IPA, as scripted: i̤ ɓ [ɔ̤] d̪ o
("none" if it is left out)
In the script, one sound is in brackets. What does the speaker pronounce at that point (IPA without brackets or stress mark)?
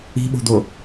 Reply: o̤